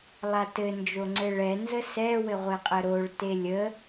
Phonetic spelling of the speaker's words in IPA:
lˠ a t ɘ n d͡ʒ o ŋ͡ǀ ɘ ɭ ɛ n z ə s ɛ w ɘ ʁʷ ɘ qʼ ə ɾ o ɭ t e lʲ ə

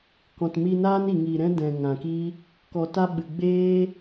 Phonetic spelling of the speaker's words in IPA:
k ɔ̃˨ t m i˧ n aː˦ n i˨ ŋ iː˨ ɾ ɛ̃˦ d ɛ̃˨ ŋ ã˨ k i˦ | k ɔ˨ t a˧ ɓ ɨ˨ ɡ͡b eː˦

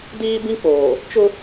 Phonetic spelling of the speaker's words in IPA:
d iː˦ b ĩ˦ k͡p oː˨ | t͡ʃ ʊ˦

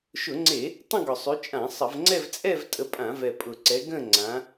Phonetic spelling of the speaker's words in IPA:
ʃ ʊ˧˩˧ ŋ͡ǀ e˧˩˧ | tˤ ə̃˥˧ ɡ ʊ˨˩ sˤ y˨˦ t͡ʃʼ ã˧˩˧ sˤ ə˧˩˧ v ŋ͡ǀ ɛ˥˧ v t͡sʼ ɛ˥˧ v tʼ ə˨˦ pʼ ã˧˩˧ v ɛ˨˩ pʼ ʊ˨˩ ǀ ɛ˨˦ ɡ ə̃˥˧ ŋ͡ǀ ã˨˦

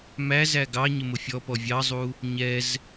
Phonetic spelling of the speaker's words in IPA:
m æ z æ ɡ ɑ ɲ ɪ m ʊ fʲ ɔ p ɔ vʲ ɑ zˤ u | ɲ ɛ z

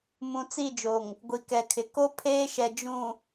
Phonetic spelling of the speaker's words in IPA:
m ũ˨ t͡s i˦˨ d͡ʒ o˨ ŋ | ɡʷ i˨ k ɛ˨ kʰ ɪ˨ k o˦ pʰ eː˦ ʃ ɛ˨ d͡ʒ ũ˨

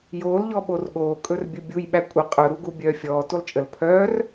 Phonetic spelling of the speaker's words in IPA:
j oː l ʎ ɔ ɓ o r ɠ oː kʼ ɵ r bʲ ɵ bʲ u j ɓ æ kʷʼ ə qʼ ɵ ɾ u ɡ u bʲ œː fʲ ɔː t u lˠ t͡ʃʼ ə l pʰ œː r

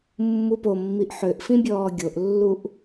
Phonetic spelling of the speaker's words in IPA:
mː u p o mː i ʔ ħ ø ʔ f ĩ bʲ ɔː ɡʲ o ʔ lː u ʔ

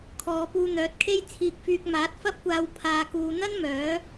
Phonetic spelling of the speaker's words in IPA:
kʰ ɔː˨˧ p uː˧ n̪ œː˨˥ t̚ kʰ e˥ j t͡sʰ iː˧ k̚ f yː˧ k̚ m aː˨˥ t̚ f ɐ˥ p̚ kʷ aː˧ w pʰ aː˧ k uː˧ n̪ ɐ˥ n m œː˨˥

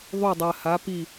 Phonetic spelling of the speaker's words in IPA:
ðˤ u˧˩ dˤ ɜ˩ h a˩˧ p i˧˩

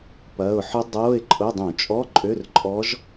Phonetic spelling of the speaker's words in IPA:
p ɐː˩˧˩ ʊ̯ ħ ʏ˧˥ dˤ oː˧˥˧ ɪ̯ ǃʼ ʊ˧˥˧ dˤ ũ˧˩˧ t͡ʃʼ ɔ˧˥˧ ǃʼ ø˧˥˧ r ǃʼ ɔ˧˥ ʒ

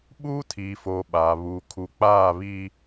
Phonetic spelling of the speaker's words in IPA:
ɓ uː˦ tʰ iː˨ f oː˨ ɓ a˨ β u˨ kʰ u˨ k͡p aː˦˨ β iː˦

